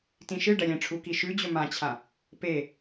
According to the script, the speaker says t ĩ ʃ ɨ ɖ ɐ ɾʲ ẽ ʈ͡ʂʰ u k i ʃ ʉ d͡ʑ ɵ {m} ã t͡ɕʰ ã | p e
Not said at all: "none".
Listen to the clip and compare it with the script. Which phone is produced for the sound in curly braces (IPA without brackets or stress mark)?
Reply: m